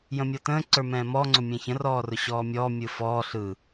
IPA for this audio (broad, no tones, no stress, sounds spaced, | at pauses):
j ə̃ mʲ ɔ t ə̃ː ǀ ə˞ m ɛ̃ː m ɔ ŋ͡ǀ ʊ mʲ ɛ̃ ç ə̃ r ɔː r ʊ ɕ ɔː mʲ ɔː mʲ ɯ f ɔː ɬ ɯ